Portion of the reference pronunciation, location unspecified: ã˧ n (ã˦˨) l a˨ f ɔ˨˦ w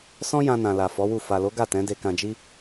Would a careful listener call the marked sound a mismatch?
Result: yes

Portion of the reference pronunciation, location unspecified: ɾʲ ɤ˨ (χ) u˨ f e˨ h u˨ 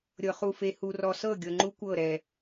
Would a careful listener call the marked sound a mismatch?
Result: no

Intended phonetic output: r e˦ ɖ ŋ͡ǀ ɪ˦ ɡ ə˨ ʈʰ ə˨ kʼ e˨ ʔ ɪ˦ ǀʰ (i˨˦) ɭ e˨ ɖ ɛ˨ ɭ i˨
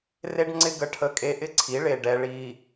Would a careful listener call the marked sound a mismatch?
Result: no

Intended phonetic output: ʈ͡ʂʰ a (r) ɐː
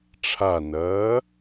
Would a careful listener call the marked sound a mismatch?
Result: yes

